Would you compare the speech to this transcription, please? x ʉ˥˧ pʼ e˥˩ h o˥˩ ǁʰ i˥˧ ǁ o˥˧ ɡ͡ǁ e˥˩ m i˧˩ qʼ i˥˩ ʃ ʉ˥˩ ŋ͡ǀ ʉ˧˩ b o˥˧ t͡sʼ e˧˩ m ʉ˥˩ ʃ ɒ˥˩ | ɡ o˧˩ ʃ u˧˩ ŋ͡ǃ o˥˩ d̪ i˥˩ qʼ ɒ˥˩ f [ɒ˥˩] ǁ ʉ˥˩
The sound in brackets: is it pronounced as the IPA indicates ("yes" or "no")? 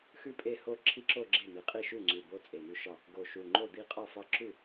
yes